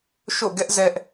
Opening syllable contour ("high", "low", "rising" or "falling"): falling